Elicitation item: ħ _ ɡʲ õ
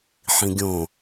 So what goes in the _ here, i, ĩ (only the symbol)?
ĩ